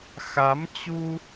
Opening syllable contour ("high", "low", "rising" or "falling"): rising